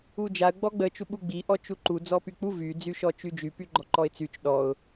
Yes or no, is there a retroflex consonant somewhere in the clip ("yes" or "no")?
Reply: no